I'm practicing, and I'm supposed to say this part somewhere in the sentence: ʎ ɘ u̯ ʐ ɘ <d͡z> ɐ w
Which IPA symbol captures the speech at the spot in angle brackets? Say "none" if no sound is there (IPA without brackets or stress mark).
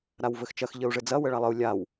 d͡z